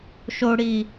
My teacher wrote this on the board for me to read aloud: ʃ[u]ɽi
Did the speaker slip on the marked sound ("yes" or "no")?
yes